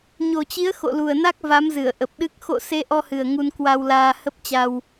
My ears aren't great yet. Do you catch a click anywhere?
no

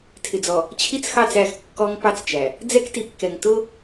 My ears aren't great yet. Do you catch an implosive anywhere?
no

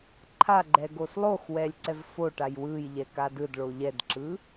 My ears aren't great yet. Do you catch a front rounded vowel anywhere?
no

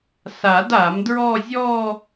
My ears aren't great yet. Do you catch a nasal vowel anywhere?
no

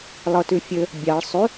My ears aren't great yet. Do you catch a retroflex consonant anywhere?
yes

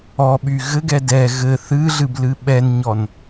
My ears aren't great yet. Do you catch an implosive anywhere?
yes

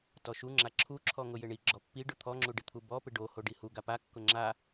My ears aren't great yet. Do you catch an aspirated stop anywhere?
yes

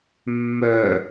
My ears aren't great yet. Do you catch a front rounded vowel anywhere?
yes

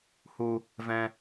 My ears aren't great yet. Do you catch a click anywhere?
no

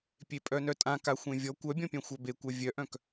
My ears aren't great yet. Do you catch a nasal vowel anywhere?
yes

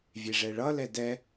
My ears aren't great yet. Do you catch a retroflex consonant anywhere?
yes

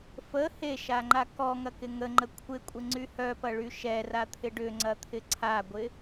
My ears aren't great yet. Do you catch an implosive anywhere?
no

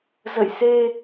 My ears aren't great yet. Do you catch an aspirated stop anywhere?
no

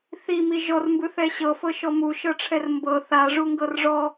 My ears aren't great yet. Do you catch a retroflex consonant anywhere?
yes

